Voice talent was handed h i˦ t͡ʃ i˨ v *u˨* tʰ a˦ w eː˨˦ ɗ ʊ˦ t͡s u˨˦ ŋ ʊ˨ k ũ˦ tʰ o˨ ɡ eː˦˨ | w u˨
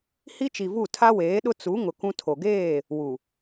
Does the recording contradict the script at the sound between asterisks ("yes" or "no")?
yes